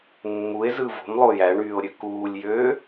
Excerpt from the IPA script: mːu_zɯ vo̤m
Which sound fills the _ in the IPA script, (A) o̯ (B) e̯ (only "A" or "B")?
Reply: B